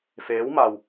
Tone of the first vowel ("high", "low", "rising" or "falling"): rising